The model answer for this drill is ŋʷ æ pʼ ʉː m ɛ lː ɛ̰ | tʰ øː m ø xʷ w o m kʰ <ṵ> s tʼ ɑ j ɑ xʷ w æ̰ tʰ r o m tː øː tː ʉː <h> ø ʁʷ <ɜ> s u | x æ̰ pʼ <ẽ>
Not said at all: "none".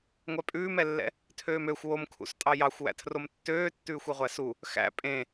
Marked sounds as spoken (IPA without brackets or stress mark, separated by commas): ṵ, xʷ, æ, ẽ